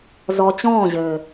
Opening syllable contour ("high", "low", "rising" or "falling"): low